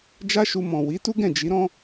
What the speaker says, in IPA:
d͡ʒ a˦ ʃ u˧ m ɔ̃˨ w i˨˦ t u˦ ɡ ɛ̃˦˨ d͡ʒ i˨˦ ɾ ɔ̃˦

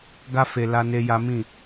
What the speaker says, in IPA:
ɡ a˦ f e˧ l a˦ n e˦ j a˦ m ĩ˦˨

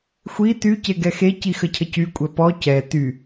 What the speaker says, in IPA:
xʷ i t y c e ɡ ɛ x e c i x ə cʰ ə c y kʷʼ ɛ p ɔ c ɛ t y

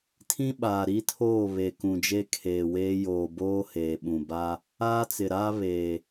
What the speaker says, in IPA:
tʰ ĩ˦ ɓ aː˨ ɾ i˦ tʰ oː˦˨ β e˨ k ũ˨ d͡ʒ e˦ kʰ eː˨ w eː˦ j oː˨ b oː˦ h eː˨ ɓ ũ˨ b a˦ | aː˦ t͡s ɪ˨ ɾ aː˦ β eː˨

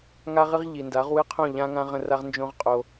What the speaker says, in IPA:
ŋ a˦ ʁ ɨ˦ ʁ ʎ i˨ n d a˨˦ ʁ w ɨ˦ qʰ õ˦˨ ʎ ã˦ ŋ ã˦ ʁ ə̃˧ r a˦ ʁ n d͡ʒ õ˦ ʁ qʼ o˧

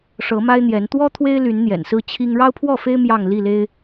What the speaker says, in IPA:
ʂ ɤ˨˦ m a˦ ɪ̯ n̪ j ɛ˨˦ n t̪ w ɔ˦ t̪ʰ w e˦ ɪ̯ l y˨˦ n n̪ j ɛ̰˨˩ n s ɹ̩˦ t͡ɕʰ i˦ ŋ ɻ ɑ˦ ʊ̯ pʰ w ɔ˥˨ f e˦ ɪ̯ m j ɑ˥˨ ŋ l i˥˨ l e˦ ɪ̯

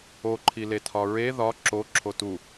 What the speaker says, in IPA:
o ǃʰ i l e tʰ ɒ ɹ e ð ɒ ǁ o ǁʰ o t u

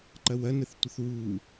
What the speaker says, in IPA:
ǃ ɐ w ɐ n ə θ tʷ ə θ w u

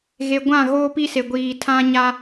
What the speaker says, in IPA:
ɣ e˨ ɡʷ ã˦˨ ɣ oː˦ p i˦ s e˨ ɡʷ iː˨ tʰ ã˦ ɲ a˦

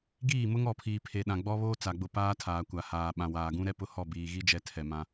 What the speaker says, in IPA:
ɡ iː˦˨ m ʊ˦ ŋ ɔ˨ pʰ iː˨ pʰ e˨ ɗ ã˨ ɡ͡b ɔ˦ β oː˦ t͡s a˨ ɡ͡b ʊ˦˨ p aː˦ tʰ aː˨ kʷ a˨ h aː˨ ɓ ã˨ w aː˨ ɡ ũ˦ ɾ ɛ˦ p ʊ˦ h ɔ˦˨ b iː˨ ɣ i˦ d͡ʒ ɛ˦ tʰ ɛ˨ m ã˦

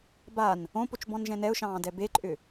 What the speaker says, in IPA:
b a n | õ p o t͡ʃ b ɔ̃ n ʒ ɛ̃ n ɛ ʊ̯ ʃ ɑ̃ː d ɛ b e ǃʼ ʏ

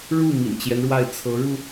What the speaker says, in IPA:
ɻ u˥˩ m ḭ˨˩ n t͡ɕ j ɛ˦ n ɻ w a˥˩ ɪ̯ t͡sʰ ɤ˧˥ ɻ u˧

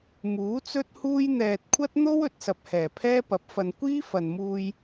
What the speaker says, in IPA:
m uː˨˥ t͡s ɵ˥ t̚ h uː˥ j n̪ ɛː˨ t̚ kʷʰ ɐ˥ t̚ n̪ o˥ w ɵ˧ t̚ s ɐ˨ p̚ h ɛː˨˩ pʰ ɛː˥ p ɐ˨˥ p̚ f ɐ˧ n kʷ iː˥ f ɐ˨ n m uː˧ j

